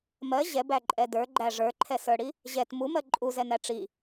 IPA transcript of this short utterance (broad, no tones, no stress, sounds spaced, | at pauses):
m ɜ ʑ ɛ b æ ǃʼ ɛ d ə˞ ɡ͡ǃ æ ʐ ə˞ ǃʰ ɛ s ə˞ ɽ i | ʑ ɛ t m u m ɜ ǃʼ u z ɛ n æ ʈ͡ʂ i